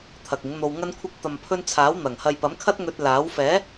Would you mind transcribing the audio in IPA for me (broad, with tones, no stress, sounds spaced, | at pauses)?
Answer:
t̪ʰ ɐ˨ k̚ ɪ˨˥ ŋ n̪ o˧ w ŋ ɐ˧ n kʷʰ ɪ˧ k̚ t̪ ɐ˨ m pʰ ɵ˧ n t͡sʰ aː˨˥ w n̪ ɐ˨˩ ŋ h ɐ˨ j p ɐ˨˥ m kʰ ɐ˥ t̚ ŋ ɵ˧ t̚ l aː˨˥ w f ɛː˨˥